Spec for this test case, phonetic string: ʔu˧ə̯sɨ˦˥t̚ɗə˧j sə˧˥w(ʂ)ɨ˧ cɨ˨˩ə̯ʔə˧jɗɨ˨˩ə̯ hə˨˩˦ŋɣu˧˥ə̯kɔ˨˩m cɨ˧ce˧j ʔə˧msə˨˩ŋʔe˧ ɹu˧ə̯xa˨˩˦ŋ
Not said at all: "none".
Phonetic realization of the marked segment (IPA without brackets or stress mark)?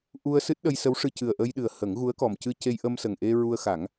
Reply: ʂ